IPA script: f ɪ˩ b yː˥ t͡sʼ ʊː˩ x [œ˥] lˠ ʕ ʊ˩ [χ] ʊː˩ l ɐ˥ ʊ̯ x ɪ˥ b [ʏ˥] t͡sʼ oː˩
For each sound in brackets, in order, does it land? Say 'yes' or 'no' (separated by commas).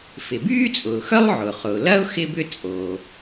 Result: yes, yes, yes